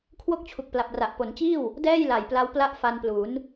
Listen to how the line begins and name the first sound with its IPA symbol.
kʰ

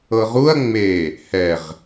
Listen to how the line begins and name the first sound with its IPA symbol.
ɤ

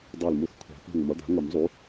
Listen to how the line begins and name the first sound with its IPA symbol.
dˤ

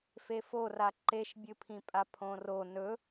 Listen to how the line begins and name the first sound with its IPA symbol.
f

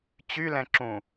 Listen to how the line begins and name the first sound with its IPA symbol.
t͡ɕ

